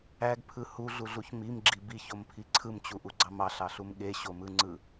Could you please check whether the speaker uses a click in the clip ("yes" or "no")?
yes